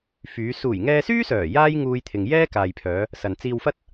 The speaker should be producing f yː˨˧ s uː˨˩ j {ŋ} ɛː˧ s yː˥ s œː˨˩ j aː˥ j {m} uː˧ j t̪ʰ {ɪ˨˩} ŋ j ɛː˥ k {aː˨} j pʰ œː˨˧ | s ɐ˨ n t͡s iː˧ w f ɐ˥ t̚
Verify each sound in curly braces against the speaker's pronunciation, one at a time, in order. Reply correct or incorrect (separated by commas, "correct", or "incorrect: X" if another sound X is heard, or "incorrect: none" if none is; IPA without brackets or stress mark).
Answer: correct, incorrect: ŋ, incorrect: ɪ˨, correct